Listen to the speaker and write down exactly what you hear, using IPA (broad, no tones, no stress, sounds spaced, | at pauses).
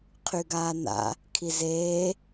qʰ y ɡ aː n a̰ | kʰ i z eː